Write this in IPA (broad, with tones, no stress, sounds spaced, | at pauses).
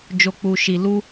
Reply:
d͡ʒ o˨ k͡p u˨ ʃ i˨ l u˧